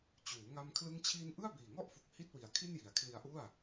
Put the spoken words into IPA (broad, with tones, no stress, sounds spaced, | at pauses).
t͡ɕ uː˩˦ ŋ a˧ m kʰ l ɯ˥˩ ŋ t͡ɕʰ iː˥˩ n ʔ ɯ˥˩ a̯ b iː˨˩ ŋ ɔ˥˩ ʔ f u˨˩ k̚ h i˥˩ t̚ w i˨˩ a̯ kʰ i˥˩ n j i˨˩ a̯ kʰ l i˧ a̯ ʔ u˥˩ a̯